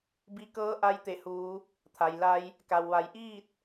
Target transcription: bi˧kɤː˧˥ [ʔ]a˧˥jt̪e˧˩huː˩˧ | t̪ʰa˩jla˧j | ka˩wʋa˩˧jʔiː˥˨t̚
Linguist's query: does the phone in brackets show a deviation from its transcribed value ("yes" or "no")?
no